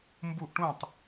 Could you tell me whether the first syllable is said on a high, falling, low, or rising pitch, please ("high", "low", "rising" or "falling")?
falling